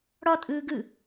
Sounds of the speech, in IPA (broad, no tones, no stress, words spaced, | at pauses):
ɽɔ tʼɯːɡɯ